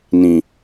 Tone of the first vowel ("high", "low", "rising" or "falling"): low